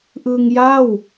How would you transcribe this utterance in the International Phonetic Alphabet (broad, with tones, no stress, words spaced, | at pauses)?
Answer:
ʔɯ˧ŋja˥˩w